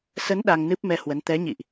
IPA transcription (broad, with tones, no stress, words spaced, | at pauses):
sə˨˦n ɗa˧ŋnɨ˦˥p̚ mɛ˧hwə˨˦n t̪ɛ˨˦ɲḭ˧˨ʔ